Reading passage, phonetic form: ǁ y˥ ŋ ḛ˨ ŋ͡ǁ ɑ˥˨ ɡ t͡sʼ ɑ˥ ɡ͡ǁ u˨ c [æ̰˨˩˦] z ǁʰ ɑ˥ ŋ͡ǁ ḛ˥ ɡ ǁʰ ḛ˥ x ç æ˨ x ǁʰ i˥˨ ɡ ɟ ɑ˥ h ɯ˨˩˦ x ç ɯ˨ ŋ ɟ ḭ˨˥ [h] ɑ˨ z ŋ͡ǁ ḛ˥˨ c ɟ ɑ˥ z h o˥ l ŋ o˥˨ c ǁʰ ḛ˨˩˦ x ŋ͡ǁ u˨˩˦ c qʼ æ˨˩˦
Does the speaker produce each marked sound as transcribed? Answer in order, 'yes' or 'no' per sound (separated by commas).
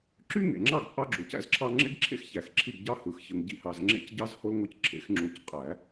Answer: no, yes